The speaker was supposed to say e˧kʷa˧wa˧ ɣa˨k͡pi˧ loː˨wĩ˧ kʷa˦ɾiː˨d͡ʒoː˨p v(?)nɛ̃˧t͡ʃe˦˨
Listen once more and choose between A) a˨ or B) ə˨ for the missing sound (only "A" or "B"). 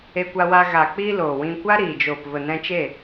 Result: B